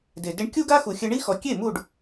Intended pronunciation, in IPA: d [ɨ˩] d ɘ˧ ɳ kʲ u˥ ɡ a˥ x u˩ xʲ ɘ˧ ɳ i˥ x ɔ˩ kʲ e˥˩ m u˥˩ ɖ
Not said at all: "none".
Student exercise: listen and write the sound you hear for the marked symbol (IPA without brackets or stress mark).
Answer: e˩